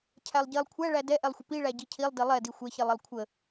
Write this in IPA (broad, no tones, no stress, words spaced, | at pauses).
cʰælˠɟilˠ kʷʰæɭæ dɛʔɛlˠxʷə piɭæ ɟicʰilˠdi lˠɛdi xʷɛçilˠilˠ kʷʰə